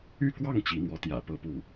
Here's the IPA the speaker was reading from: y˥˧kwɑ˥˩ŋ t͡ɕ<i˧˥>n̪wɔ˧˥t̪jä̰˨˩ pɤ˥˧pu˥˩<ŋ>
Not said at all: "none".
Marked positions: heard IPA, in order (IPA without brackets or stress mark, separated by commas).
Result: i˧˥, none